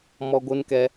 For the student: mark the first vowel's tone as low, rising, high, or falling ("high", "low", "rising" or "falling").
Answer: high